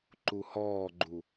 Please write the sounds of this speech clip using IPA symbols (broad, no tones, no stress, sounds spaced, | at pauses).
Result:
ǃ u h ɔː ɡ͡ǃ u